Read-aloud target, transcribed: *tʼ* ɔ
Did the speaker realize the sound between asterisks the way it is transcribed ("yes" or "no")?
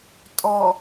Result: yes